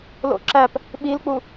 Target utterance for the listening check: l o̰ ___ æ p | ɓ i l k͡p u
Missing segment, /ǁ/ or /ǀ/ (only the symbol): ǁ